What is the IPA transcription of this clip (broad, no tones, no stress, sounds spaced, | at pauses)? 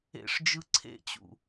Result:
ḛ ʂ d͡ʒ ɯ ǀʰ ḛ t͡ɕ ṵ